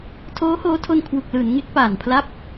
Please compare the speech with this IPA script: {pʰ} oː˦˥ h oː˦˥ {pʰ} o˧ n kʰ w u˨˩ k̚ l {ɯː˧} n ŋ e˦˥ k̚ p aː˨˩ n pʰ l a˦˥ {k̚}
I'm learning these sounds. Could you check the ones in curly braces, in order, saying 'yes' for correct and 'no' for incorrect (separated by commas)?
no, no, no, no